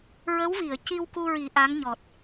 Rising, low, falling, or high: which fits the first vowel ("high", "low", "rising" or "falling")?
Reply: rising